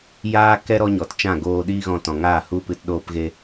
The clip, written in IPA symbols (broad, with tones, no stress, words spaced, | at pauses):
jaː˦kɛ˦ ɾɔ˦ɲɔ˨tt͡ʃã˦˨ ɡoː˧ ɗiː˦ɣɔ̃˧tɔ̃˨ŋaː˦˨ hu˦pɨ˧t ɗoː˧pɣe˧